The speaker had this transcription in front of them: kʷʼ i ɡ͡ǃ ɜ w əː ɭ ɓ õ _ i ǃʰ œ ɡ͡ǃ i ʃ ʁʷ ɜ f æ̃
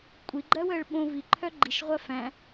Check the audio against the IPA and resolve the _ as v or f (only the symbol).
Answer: v